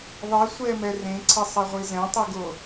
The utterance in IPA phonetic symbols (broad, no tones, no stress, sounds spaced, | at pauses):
ðˤ e sʷ ɛ m ɛ r ẽ ǀʰ ɛ sˤ ɛ ʁʷ i z ɛ̃ tˤ i ɡ o